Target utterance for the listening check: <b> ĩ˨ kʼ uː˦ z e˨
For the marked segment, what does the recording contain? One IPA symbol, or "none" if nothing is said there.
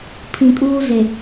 pʰ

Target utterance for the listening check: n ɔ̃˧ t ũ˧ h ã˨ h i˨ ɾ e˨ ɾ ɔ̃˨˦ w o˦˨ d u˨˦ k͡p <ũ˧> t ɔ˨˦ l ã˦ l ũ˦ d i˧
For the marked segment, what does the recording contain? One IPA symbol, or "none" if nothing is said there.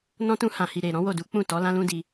ũ˦˨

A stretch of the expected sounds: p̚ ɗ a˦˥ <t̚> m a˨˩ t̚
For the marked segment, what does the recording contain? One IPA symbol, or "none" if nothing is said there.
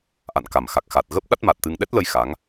t̚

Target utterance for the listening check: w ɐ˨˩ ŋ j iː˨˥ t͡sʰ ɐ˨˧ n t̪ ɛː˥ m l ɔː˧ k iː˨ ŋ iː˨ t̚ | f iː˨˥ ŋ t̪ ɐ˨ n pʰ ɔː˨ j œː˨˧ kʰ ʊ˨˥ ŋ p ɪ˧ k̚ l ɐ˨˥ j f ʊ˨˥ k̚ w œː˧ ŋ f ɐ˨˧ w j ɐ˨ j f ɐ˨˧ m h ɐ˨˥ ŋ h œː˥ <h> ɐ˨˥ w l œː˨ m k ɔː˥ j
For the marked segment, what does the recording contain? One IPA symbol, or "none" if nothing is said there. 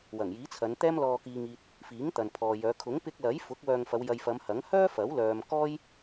f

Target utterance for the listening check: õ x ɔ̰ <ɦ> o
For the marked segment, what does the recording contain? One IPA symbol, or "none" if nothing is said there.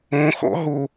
ɦ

